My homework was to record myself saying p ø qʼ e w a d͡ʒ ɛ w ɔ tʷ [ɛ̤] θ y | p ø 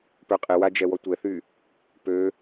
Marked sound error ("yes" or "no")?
yes